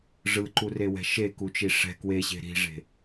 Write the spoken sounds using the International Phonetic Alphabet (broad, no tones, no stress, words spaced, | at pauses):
ʐɯǃurewɛ̤ ʃekut͡ʃi ʂɛ̤ kweɕe̤ ɾi̤ʐe̤